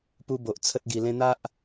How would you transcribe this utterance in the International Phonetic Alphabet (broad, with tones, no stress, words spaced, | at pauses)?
pu˧bo˨ʔ t͡sʰə˦t̚ɡi˧lẽ˦ n̪a˦ʔ